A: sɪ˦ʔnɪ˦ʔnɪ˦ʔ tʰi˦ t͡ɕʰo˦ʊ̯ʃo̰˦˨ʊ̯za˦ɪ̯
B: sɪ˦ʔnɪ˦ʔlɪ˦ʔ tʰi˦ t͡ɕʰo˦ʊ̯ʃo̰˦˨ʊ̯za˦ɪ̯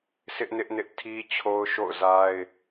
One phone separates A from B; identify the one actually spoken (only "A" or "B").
A